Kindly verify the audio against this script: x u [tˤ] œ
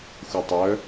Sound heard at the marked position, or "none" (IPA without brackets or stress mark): tˤ